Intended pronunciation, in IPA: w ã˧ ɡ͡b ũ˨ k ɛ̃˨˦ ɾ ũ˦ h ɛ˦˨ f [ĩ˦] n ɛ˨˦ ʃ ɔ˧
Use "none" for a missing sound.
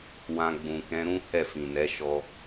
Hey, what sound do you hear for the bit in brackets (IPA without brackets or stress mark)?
ĩ˨